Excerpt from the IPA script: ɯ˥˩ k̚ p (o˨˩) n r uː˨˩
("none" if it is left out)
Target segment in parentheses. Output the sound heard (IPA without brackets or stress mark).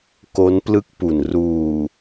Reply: u˨˩